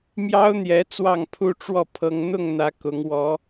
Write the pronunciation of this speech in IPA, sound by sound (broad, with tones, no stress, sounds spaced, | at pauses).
m j ɑ˦ ʊ̯ n̪ j ɛ˨˦ t͡s w ɑ˥˨ ŋ pʰ u˦ ʈ͡ʂ w ɔ˥˨ pʰ ɤ˦ ŋ n̪ ʊ˥˨ ŋ n̪ ä˨˦ k ʊ˨˦ ŋ w ɔ˨˦